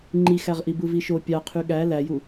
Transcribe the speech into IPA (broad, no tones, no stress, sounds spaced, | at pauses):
ŋ͡ǃ i x æ ʁ ʔ i b ɯ v i ʃ o pʲ ɑ qʰ y ɠ æ l æ j u